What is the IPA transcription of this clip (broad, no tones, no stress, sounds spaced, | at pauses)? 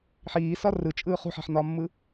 ħ iː s ɒ r ɯ t͡ʃʼ ɯː χ ṳ ħ a̤ ħ n ɒː mː ɯ